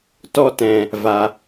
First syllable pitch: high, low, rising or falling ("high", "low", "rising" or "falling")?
high